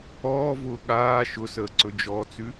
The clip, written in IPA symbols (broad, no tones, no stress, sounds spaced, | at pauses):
ɔː v ʊː ɠ aː ʃ ʊ s əː ǀ ɵ d͡ʒ ɔ t͡s ʉ